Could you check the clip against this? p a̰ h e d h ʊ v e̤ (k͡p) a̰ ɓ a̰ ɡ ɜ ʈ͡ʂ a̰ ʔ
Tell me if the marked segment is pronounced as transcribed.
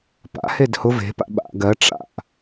no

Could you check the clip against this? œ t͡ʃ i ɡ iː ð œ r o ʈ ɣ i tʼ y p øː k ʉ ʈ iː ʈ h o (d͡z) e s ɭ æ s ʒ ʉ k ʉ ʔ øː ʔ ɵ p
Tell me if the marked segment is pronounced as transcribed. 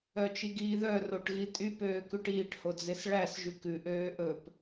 yes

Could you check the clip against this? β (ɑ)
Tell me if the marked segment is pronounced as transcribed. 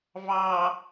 yes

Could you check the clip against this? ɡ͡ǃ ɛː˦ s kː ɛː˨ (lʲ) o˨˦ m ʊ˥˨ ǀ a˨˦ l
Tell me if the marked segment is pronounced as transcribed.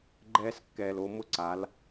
no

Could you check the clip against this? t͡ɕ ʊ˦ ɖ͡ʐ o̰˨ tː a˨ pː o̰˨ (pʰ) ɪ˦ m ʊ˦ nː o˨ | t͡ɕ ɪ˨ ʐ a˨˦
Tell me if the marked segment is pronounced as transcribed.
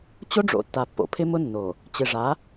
yes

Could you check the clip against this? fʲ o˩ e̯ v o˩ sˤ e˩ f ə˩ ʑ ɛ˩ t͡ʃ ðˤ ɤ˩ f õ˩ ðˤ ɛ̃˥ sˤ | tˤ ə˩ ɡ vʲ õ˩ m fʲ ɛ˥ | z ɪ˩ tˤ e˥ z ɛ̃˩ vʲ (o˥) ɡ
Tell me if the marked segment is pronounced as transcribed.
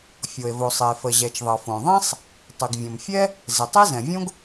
no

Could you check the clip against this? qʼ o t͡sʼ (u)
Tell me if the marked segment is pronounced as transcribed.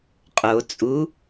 yes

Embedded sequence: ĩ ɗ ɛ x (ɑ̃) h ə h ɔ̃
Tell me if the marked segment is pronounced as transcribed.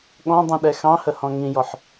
yes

